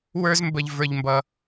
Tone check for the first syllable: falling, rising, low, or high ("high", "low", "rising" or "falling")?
high